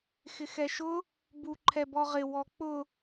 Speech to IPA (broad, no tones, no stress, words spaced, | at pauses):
xɪxɛʃʊ | bu ǃʰɛbɔʁɪ wɔk͡pʊ